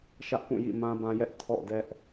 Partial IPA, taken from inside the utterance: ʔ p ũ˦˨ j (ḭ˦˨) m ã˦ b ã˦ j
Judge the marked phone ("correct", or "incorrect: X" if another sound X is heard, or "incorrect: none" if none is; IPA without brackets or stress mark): correct